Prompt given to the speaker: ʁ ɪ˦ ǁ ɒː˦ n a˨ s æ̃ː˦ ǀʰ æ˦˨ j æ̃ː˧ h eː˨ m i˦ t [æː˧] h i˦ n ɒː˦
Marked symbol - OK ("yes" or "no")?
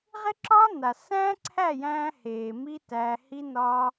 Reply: yes